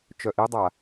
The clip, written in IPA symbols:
t͡ʃ œ ʔ i dˤ a

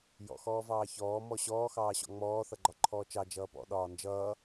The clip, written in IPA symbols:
j ɔ̰ x ɔː v ɑː ç ɔː m ɔ ɕ ɔː x ɑː ɕ ɔ̰ ŋ͡m ɔː θ ʌ ɡ͡ǃ ɒ ǃʰ ɔː t͡ʃ ɑ d͡ʒ ʌː p ɔ̰ ɗ ɒː n d͡ʒ ʌː

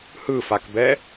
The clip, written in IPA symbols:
h ɯ f a k b ɛ

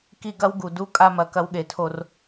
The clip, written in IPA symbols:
k i˦ ɡ ɐ˦ w ɡ u˨ d u˦ kʼ a˦ m ɐ˨˦ k ɐ˦ w ɠ e˨ tʰ o˦ r

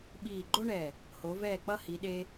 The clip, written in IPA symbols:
ɓ iː˧˩ ɡ͡ǃ o˥ ɳ ɛ˧˩ | h o˩˧ v ɛː˧˩ k͡p ʌ˧ h i˩˧ ɗ e˧

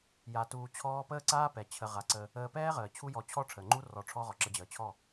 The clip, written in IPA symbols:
j a˧ t uː˧ t͡ɕʰ ɔː˦ p əː˦ ǀ aː˦ p ɛ˨ t͡ɕʰ ə˨ ʁ a˨ ǀ ə˧ | əː˧ p ɛː˦ ʁ əː˨ t͡ɕʰ u˦ j ɔ˧ t͡ɕʰ ɔ˦ ʈ͡ʂʰ əː˨ ŋ͡ǃ u˦ r ɔ˧ ʈ͡ʂʰ ɔ˦ ʁ ɔ˨ ǁ ə˧ d͡ʑ əː˨ t͡ɕʰ ɔ˦˨

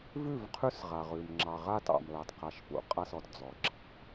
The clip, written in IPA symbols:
v ʉ˦˨ v qʰ ʉ˦ s ʁ a˨ ʁ ʉ˨ m ŋ͡ǁ ɑ˨ ʁ a˦ t ɑ̰˨ m l ɑ˨ t q a˨ ʃ p ṵ˨ qʼ a˦ s ɔ˨ t d͡z ɔ˨ ǁʰ ɑ̤˨˦

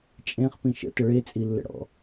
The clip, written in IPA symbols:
t͡ʃʼ ẽ χ p ĩ ʃ ə̰ t ə ɭ e t͡sʼ i lː ə̰ ɽ ɔ̰

